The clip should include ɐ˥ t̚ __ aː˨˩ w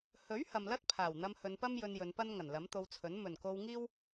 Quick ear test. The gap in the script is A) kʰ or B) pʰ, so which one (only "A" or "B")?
B